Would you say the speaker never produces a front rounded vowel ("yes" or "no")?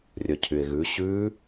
no